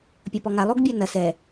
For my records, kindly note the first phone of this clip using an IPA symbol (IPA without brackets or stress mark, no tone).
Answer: pʲ